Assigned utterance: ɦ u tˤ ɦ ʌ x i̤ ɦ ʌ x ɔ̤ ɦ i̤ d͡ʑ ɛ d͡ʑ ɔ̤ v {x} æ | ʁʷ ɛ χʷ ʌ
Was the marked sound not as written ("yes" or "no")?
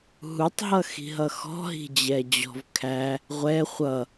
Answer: yes